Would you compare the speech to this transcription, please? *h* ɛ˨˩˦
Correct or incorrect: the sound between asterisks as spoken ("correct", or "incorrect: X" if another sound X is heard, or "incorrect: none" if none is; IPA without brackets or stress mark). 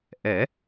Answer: incorrect: ʔ